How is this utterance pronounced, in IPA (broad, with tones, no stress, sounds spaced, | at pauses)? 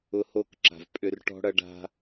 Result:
ʊ˧ h o˦˨ k ǁ a̤˨ v pʼ ʏ˧ r ʈ ɔ̤˦ ɽ ɐ˦ ɖ a̤˦